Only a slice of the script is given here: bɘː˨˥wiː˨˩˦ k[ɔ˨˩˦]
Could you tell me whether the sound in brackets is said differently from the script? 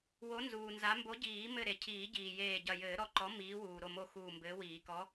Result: yes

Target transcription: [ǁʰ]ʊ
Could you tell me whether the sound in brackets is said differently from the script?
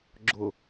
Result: yes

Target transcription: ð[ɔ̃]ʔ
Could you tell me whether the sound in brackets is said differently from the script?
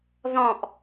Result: no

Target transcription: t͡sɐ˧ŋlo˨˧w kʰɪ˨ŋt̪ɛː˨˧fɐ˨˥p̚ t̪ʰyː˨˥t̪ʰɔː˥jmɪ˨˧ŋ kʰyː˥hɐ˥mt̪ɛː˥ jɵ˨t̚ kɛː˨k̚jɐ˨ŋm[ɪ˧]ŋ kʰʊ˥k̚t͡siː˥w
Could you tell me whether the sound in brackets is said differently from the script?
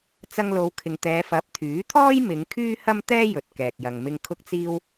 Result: no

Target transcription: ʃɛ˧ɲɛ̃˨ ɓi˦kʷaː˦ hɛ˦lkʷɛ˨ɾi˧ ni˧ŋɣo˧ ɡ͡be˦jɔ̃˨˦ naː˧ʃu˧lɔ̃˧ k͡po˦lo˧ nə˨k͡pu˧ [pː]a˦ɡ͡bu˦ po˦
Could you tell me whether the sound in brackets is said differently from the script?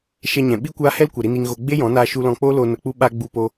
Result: yes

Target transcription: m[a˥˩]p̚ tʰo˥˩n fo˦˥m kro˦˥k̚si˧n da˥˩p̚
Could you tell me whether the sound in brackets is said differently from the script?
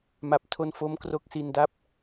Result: no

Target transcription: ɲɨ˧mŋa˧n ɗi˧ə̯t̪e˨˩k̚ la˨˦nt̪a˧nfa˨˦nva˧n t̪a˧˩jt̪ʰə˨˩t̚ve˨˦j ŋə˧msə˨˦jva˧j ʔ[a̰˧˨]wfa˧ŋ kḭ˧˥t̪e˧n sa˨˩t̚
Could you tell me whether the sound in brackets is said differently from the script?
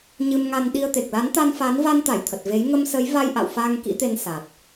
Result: no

